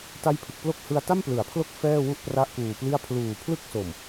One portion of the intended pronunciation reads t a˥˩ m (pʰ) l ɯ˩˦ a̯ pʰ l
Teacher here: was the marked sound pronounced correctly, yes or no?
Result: no